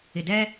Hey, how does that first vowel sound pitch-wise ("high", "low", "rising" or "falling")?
low